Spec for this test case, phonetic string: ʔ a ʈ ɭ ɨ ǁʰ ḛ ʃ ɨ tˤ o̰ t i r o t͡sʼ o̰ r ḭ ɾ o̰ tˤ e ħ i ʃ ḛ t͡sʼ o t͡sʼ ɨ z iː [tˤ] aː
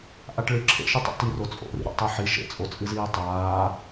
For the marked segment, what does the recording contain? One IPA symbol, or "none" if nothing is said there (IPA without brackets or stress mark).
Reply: tˤ